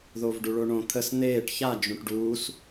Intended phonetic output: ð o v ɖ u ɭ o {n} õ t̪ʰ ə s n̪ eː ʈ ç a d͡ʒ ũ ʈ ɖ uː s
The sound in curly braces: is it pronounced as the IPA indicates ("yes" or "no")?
no